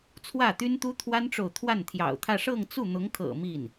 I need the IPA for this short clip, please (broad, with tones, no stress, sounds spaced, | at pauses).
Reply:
t͡sʰ w ä˥˩ t̪ y˥ n t̪ u˥ t̪ʰ w a˥ n ʈ͡ʂ o˨ ʊ̯ t̪ʰ w a˥˩ n t̪ʰ j ɑ̰˨˩ ʊ̯ t̪ʰ ä˥˧ ʂ ɤ˥˧ ŋ t͡s u˥˩ n̪ ʊ˧˥ ŋ kʰ ɤ̰˨˩ m i˥˩ n